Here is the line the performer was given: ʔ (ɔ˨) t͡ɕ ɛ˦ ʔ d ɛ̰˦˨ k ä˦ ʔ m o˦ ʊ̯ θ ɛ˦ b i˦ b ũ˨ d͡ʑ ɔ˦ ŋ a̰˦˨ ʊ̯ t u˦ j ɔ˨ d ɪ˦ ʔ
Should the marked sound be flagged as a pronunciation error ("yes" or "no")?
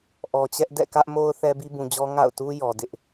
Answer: no